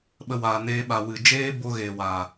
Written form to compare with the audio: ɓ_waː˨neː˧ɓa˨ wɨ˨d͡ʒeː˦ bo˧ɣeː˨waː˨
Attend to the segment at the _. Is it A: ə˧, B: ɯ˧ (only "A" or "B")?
A